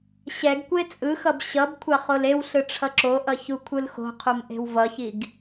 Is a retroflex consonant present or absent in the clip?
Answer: present